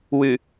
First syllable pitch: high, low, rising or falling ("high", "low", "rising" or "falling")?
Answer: low